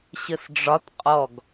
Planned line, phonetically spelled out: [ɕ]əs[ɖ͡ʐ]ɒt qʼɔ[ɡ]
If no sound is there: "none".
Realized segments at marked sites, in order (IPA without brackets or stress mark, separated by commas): ɕ, ɖ͡ʐ, ɡ